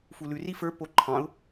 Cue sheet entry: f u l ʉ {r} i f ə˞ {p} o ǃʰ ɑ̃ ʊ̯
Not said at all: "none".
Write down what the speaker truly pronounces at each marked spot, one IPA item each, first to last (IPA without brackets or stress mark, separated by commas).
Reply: r, p